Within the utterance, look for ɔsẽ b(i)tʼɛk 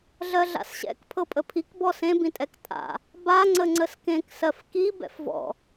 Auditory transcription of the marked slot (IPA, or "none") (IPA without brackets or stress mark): ĩ